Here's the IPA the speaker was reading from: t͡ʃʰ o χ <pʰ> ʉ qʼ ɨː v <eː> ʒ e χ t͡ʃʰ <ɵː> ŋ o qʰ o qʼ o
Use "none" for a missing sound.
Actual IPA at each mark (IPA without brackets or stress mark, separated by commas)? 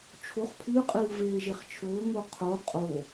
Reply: pʰ, eː, ɵː